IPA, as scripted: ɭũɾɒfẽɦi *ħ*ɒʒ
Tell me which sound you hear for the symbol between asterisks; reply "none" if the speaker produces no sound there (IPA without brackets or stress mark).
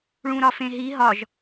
ɦ